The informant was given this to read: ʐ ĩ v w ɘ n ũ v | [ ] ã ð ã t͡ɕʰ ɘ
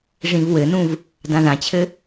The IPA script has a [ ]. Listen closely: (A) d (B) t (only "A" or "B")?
A